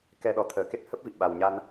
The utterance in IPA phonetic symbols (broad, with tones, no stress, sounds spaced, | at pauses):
k ɛ˧ ɗ ɔ˨˩ t̪ʰ əː˨˩ k e˦˥ t̚ h ə˦˥ p̚ v ḭ˧˨ ɓ a˨˩ w ɲ a˧ n